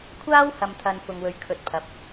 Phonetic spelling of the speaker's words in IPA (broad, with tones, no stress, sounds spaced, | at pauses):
kʷʰ aː˥ w h ɐ˨ m t̪ʰ ɐ˨ n f ʊ˧ ŋ w ɵ˧ ɥ kʰ ɵ˧ t̚ pʰ ɐ˨ p̚